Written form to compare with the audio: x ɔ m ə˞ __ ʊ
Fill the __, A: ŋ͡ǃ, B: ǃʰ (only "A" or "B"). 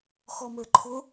B